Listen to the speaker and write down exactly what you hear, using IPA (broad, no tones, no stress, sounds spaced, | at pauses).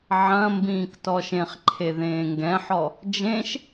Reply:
ʕ ɐ̃ m b ĩː k t ɔ ʃ ẽ χ ǃʰ e ð ẽː ŋ ɡ ɛ̃ ħ ɔ | d͡ʒ ẽ ʃ